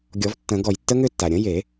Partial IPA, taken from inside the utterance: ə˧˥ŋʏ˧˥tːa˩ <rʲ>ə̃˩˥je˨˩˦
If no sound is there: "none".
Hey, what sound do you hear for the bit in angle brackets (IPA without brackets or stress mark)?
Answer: ɾʲ